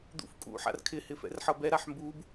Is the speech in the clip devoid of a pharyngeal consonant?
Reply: no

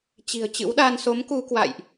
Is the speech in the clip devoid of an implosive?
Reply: no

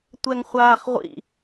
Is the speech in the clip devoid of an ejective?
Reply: yes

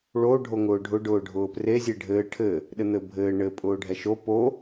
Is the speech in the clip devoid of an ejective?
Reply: no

